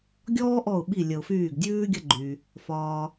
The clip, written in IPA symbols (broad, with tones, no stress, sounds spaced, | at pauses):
ɡʲ ɔː˦ ʔ ɔ˧˩ ʊ̯ ɓ i˧˩ lʲ ə˩ ʊ̯ f yː˧˩ ɡ dʲ ʉː˦ ɡʲ ɐ˦ ɡ͡ǃ y˩ | f ɒː˩